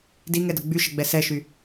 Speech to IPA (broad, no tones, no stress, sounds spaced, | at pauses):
d i ŋ ɛ d ə ɡ͡b y ʃ ə ɡ͡b ɛ s ɛ ʃ y